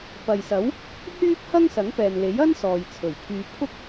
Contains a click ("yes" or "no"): no